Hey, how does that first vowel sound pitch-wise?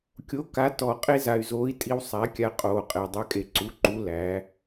rising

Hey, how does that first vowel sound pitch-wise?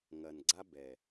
low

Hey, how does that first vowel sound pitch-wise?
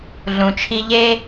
low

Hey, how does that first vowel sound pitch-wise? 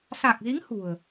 low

